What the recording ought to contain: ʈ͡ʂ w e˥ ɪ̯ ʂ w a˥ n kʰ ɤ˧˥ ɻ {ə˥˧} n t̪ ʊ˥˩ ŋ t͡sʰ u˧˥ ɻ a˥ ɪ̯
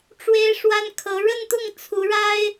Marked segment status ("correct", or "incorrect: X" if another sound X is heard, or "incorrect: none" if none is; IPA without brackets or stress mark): correct